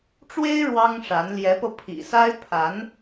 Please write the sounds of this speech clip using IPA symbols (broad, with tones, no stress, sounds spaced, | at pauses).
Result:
ʈ͡ʂ w e˥ ɪ̯ ɻ w ɑ˥ ŋ ʂ a˧˥ n l j ɛ˧˥ p ɤ˧ pʰ ḭ˨˩ s a˥ ɪ̯ pʰ a˧˥ n